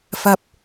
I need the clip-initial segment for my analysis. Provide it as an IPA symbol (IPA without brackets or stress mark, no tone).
f